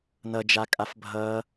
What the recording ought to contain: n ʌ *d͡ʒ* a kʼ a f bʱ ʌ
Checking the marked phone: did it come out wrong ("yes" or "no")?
no